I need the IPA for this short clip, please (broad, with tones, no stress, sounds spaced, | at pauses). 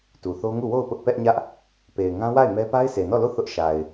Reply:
t u˨ θ o˦ ŋ u˦˨ w o˦˨ ʊ̯ p ʊ˦ ʔ p ɛ˦ ʔ ɲ ä˦ ʔ | p e˨ ɪ̯ ŋ ã˦ w a˦˨ ɪ̯ m ɛ˦ p a˦ ɪ̯ s e˨ n ɔ˦˨ l o˦˨ θ ʊ˦ ʔ ʃ a˨ ɪ̯